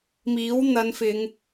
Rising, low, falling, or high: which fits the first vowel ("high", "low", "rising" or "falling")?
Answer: rising